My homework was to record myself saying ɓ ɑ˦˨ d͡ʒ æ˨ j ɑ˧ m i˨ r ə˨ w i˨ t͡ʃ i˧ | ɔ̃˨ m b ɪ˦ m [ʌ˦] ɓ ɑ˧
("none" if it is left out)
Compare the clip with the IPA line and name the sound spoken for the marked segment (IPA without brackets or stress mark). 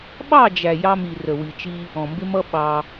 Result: ʌ˦